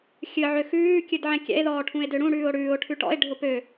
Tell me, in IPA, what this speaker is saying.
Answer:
xʲ ɨ ʕ ø x ʉː kʲ ɨ d ʕ ɛ̃ kʲ ɛ̰ e̯ ð ɔː ʈʰ ũ e̯ d ø ɽ ũ ɽ ʉː o̯ ɽ ʉː o̯ ʈʰ ʉ ʈ ɔ̰ e̯ ɖʱ ʊ p ø

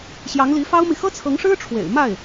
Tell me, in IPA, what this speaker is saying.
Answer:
ɕ j ɑ˧˥ ŋ l i˧˥ f ɑ˥ ʊ̯ m i˨ x ɤ˥ t͡sʰ ɤ˧˥ ŋ ʂ ɻ̩˥ ʈ͡ʂʰ w ḛ˨˩ ɪ̯ m a˥˩ ɪ̯

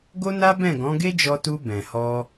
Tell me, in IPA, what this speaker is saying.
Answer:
ɡ o˦ n a˦ b ɛ̃˦˨ ɡ ɔ̃˨˦ ɡ e˦ d͡ʒ ɔ˧ t u˧ b ɛ̃˨ h ɔ˧

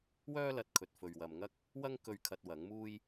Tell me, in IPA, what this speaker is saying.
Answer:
w œː˥ l ɐ˨ t̚ kʰ ɵ˨ t̚ f ɵ˨ ɥ w ɐ˨ m ŋ ɐ˥ k̚ | w ɐ˥ ŋ k ɵ˧ ɥ kʰ ɐ˧ t̚ w ɐ˨˥ ŋ m uː˥ j

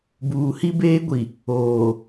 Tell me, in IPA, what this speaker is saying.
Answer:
b uː˨ h i˦ b eː˦ ɡʷ i˨ | oː˨

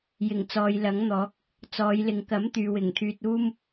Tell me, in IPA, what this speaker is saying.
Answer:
j ɪ˨˩ ŋ t͡s ɔː˨ j l ɐ˨˥ ŋ n̪ ɔː˨˥ k̚ | t͡s ɔː˨˧ j l ɪ˨ ŋ k ɐ˨˥ m t̪ yː˨ w ɪ˨˩ ŋ t̪ʰ yː˨ t̚ uː˥ m

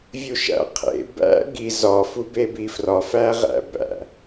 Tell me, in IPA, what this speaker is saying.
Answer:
vʲ u ʃ æ̰ qʰ ḛ b æ̰ ɡ i z ɒ f u b e b i f r ɒ f æ ʁ æ̰ b æ̰

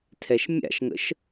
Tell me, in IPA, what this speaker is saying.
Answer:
tʰ ɛ ʃ mʲ a̰ ʃ ŋ ə̰ ʃ

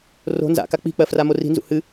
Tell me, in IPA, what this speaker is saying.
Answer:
r o̤ n z a̰ k a k͡p i̤ k͡p ɜ f r a m o r i̤ n z ṵ h ɨ

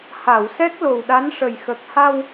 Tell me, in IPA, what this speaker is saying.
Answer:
h a˨˩˨ w s ɛ˦˥ k̚ l o˨˩ w ɗ a˧˥ n ʂ ə˨˩ j x ə˨˩ k̚ h a˧ w

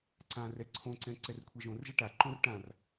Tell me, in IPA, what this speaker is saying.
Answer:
ǀ ã r ɛ ǀʰ õ ǀ ɛ̃ ǀ ɛ r kʷʰ ɛ ʒ õ r ʒ ɛ ʈ a ǃ õ r ʈ ã r

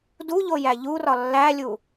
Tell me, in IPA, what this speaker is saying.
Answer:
d u ʎ o j æ ʎ u r ɒ lː æ lʲ u

